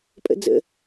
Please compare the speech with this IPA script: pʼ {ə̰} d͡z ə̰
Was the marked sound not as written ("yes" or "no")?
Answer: no